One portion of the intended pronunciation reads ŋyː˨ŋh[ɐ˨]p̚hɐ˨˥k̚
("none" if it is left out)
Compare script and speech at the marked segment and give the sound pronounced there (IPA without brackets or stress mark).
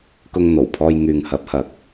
ɐ˨˥